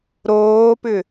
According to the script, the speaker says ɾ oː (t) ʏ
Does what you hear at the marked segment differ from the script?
yes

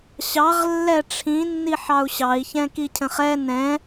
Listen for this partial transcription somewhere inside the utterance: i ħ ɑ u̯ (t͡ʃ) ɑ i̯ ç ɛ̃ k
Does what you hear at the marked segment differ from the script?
yes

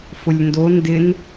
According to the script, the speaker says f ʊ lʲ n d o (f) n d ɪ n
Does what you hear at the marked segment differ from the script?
yes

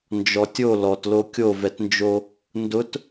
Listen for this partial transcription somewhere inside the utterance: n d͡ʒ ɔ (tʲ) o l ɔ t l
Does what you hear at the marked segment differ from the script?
no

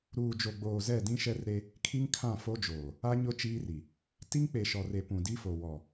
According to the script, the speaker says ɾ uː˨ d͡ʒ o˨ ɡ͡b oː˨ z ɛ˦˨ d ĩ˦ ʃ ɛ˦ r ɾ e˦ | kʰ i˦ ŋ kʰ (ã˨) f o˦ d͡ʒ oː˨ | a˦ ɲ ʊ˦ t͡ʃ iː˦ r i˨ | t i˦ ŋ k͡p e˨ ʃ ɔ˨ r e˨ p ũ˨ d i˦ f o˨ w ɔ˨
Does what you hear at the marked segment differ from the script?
yes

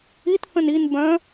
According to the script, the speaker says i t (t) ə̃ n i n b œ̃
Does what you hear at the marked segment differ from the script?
yes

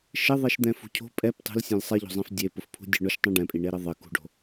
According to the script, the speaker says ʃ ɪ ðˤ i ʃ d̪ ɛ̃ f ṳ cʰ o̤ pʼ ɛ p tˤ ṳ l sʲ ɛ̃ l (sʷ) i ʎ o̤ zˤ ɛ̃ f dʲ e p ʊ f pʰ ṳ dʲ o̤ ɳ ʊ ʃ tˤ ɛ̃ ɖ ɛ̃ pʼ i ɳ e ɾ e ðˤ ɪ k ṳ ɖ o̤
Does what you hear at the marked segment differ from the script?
yes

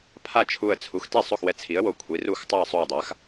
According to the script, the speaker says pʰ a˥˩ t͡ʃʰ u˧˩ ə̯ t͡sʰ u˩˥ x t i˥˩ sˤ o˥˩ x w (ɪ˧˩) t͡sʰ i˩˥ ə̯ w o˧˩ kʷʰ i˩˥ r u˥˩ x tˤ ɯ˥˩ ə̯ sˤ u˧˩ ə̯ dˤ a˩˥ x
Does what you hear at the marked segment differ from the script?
yes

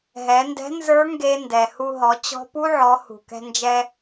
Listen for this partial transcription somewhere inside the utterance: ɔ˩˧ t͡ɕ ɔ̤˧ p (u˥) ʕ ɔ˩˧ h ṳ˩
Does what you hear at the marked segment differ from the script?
no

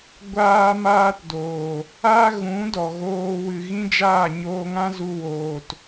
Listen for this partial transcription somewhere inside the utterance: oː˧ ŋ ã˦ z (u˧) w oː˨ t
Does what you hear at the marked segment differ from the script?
no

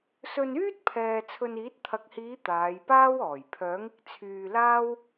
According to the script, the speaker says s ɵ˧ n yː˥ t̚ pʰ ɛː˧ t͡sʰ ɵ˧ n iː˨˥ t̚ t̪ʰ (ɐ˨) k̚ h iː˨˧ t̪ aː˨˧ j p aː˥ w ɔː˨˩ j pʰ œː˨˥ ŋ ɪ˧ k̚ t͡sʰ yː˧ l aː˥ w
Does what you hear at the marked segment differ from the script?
no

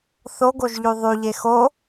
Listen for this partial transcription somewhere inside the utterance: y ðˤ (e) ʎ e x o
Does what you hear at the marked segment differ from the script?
yes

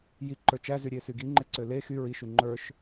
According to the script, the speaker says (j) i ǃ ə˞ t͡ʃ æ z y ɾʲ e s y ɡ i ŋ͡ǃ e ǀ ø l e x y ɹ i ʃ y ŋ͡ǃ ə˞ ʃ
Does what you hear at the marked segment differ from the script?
no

